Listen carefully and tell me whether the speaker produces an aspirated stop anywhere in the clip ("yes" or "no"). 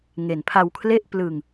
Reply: yes